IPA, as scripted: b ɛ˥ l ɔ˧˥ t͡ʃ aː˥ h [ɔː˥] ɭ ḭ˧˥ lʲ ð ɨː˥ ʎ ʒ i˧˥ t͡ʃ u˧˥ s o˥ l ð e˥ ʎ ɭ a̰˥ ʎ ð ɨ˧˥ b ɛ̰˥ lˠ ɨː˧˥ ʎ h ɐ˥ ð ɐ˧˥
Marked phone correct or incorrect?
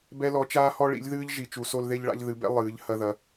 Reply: incorrect